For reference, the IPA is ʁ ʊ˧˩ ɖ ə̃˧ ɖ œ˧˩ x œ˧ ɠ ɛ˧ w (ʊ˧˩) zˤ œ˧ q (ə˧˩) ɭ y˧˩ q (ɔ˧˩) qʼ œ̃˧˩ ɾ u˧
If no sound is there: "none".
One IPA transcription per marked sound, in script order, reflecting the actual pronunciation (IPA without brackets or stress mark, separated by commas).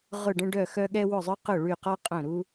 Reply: ʊ˧˩, ʊ˧˩, ɔ˧